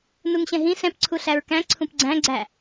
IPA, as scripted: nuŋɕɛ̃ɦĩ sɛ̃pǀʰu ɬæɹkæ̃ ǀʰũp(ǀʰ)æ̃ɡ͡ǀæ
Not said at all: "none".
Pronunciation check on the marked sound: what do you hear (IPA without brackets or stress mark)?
ɡ͡ǀ